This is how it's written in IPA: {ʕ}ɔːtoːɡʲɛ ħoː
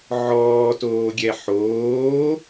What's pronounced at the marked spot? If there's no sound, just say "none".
ʕ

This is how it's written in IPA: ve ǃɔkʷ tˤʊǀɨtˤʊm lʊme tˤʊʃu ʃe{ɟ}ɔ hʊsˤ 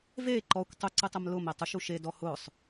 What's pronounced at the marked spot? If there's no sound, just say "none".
d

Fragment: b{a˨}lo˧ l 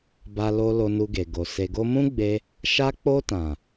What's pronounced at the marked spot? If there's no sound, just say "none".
a˧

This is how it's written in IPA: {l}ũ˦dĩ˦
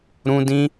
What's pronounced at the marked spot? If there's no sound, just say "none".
ɾ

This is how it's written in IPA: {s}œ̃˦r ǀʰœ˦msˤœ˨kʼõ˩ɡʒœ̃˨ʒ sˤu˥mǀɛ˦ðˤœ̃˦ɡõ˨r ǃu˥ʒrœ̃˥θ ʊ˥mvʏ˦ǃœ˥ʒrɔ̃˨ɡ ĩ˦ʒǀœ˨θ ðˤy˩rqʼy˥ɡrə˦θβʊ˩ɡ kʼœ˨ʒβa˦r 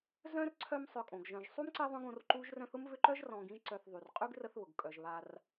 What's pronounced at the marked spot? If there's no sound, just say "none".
z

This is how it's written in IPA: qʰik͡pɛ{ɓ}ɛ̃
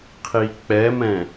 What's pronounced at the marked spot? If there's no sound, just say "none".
m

